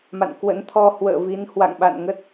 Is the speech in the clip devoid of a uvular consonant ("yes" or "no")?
yes